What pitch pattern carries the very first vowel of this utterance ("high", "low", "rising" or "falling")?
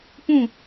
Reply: falling